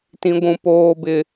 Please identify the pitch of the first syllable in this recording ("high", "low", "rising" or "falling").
high